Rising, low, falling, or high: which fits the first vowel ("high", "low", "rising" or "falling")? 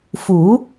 rising